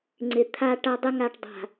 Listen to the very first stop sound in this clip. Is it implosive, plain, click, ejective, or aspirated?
click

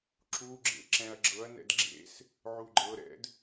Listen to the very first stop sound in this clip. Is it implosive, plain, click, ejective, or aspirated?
click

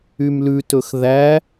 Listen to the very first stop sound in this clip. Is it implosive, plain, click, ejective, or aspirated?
plain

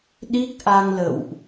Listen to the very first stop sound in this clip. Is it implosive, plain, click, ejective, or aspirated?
implosive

